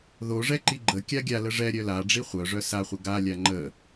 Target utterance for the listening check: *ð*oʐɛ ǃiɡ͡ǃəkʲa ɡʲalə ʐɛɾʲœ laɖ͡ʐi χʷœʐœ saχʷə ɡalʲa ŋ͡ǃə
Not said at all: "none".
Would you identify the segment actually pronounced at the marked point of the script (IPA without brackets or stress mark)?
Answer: ð